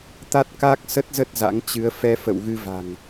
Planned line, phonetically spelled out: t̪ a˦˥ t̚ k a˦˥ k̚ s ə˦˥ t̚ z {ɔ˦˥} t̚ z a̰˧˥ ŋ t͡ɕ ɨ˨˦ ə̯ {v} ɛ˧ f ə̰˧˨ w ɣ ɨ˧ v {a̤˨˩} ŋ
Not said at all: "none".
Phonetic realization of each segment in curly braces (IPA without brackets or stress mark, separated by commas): ə˦˥, f, a̤˨˩